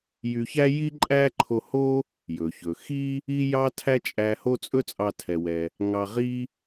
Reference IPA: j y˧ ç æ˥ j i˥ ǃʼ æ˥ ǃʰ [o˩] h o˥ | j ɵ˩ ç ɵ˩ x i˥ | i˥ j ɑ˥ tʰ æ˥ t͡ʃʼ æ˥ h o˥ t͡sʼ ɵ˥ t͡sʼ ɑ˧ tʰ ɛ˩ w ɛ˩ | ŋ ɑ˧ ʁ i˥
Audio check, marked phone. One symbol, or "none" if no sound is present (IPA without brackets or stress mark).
o˧